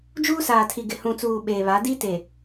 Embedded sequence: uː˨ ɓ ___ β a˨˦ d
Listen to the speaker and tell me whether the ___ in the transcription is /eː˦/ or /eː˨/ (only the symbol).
eː˨